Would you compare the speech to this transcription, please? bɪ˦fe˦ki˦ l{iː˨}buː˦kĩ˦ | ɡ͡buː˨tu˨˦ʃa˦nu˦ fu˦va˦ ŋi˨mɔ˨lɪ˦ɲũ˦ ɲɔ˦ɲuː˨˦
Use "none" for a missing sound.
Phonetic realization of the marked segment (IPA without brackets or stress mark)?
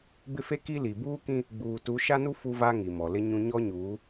i˨